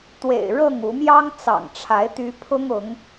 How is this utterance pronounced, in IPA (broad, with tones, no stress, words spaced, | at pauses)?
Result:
t̪wḛ˨˩ɪ̯ ɻɤ˥˨ŋu˨˦ mjɑ˦ŋt͡sɑ̰˨˩ŋʈ͡ʂʰa˨˦ɪ̯ t̪y˨˦pʰʊ˦ŋʊ˨˦ŋ